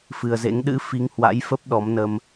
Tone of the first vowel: low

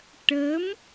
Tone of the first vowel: rising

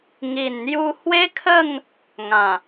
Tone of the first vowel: low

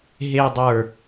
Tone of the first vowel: low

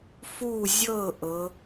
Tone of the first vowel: falling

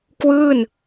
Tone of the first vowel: falling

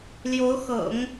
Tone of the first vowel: rising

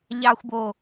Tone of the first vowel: low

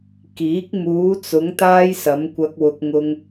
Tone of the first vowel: rising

